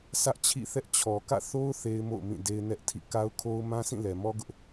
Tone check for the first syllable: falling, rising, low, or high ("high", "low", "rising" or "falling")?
high